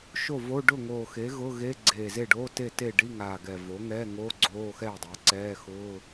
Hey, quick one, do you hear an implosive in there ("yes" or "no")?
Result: no